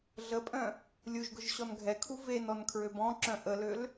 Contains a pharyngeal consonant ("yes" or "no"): no